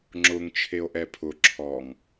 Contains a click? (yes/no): yes